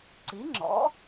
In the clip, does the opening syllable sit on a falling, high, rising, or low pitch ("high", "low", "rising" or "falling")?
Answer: rising